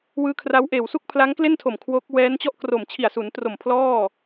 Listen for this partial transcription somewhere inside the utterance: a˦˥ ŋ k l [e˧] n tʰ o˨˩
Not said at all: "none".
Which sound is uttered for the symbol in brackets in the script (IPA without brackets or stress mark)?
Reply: e˥˩